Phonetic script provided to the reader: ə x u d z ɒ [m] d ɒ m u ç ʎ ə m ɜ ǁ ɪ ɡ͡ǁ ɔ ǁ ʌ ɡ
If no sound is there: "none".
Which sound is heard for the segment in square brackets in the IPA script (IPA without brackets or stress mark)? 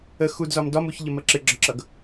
m